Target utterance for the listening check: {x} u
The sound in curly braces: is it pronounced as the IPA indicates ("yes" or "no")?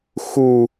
yes